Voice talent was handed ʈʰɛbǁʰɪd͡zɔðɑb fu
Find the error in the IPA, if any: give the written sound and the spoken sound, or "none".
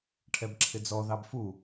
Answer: none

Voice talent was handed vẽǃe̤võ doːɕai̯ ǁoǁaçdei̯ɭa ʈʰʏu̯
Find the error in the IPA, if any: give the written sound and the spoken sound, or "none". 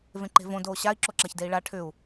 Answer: none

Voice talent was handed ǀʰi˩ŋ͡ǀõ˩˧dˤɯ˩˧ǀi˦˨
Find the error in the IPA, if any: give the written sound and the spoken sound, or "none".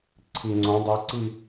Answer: none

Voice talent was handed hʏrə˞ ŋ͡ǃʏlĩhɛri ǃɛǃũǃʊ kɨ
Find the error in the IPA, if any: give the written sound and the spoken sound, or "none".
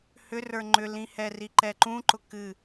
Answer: none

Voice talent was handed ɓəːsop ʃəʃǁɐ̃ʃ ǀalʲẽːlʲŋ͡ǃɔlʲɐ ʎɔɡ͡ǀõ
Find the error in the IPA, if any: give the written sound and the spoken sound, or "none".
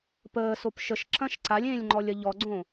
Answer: ɓ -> p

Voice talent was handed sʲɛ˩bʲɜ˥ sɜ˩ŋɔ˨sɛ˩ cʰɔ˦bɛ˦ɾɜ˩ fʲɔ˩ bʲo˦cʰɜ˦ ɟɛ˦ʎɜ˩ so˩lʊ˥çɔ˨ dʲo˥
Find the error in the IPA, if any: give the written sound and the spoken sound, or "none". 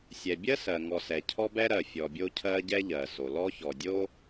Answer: ʊ˥ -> ɔ˥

